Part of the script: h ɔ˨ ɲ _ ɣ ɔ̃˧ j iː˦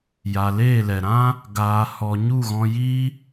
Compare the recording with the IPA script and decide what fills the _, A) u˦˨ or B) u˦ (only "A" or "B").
A